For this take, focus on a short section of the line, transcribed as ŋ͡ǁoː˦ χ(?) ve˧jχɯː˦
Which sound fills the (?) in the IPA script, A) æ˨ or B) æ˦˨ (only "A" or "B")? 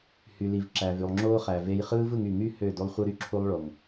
A